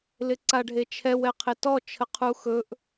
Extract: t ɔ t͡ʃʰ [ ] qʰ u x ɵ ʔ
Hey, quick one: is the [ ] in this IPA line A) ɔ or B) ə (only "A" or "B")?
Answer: B